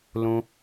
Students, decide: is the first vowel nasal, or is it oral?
nasal